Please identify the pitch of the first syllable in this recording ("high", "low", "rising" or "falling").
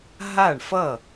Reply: falling